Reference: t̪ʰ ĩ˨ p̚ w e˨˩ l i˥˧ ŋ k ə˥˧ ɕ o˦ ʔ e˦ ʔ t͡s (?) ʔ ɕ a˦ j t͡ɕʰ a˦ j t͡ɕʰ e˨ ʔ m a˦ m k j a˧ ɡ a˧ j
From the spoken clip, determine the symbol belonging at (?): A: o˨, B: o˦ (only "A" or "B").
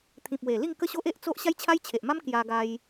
B